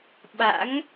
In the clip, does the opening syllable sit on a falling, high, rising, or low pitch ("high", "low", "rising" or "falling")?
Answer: rising